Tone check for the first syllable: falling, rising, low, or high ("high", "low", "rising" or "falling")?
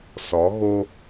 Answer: rising